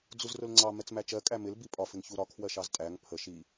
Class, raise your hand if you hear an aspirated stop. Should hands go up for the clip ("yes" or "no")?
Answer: yes